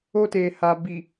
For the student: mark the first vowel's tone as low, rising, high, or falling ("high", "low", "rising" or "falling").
high